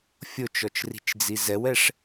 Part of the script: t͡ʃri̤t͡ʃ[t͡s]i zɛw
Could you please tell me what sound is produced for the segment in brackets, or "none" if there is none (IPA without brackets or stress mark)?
d͡z